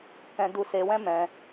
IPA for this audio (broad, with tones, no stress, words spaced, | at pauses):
kɛ̃˧ du˧se˧wɛ̃˦ mɛ̃˧